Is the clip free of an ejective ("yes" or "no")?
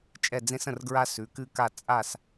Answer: no